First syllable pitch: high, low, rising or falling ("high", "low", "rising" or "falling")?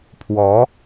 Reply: rising